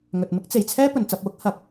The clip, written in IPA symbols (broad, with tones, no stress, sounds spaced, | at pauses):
ŋ ɵ˨ t̚ m ɪ˥ k̚ t͡s e˨˩ j t͡sʰ ɛː˥ p ɵ˨˧ n t͡s ɐ˧ p̚ w ʊ˥ k̚ h ɐ˨˥ k̚